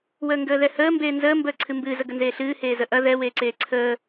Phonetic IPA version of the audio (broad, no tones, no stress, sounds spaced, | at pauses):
w əː ŋ ɡ əː ð ɛ h əː m b eː n z əː m b əː ǀʰ ɨ m b ɨː z ə ɡ ə n z eː ɬ ɨː h eː z ə ʔ ɐ ð ɛ w eː ǀ eː ǀʰ əː